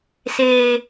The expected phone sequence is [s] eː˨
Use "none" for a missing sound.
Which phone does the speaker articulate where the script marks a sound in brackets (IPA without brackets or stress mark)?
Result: s